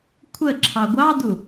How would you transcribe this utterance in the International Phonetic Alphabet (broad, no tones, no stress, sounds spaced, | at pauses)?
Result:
kʷʰ ə ǁʰ ɑ ɡʷ ɑ d u